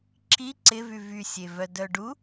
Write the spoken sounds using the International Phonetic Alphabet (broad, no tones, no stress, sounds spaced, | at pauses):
ǁ i ǀ ɪ v y v y sʲ e v œ d œ ɖ u